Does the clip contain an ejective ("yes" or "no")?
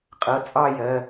yes